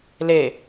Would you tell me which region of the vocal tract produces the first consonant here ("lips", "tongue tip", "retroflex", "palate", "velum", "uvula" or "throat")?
tongue tip